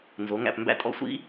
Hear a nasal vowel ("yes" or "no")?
no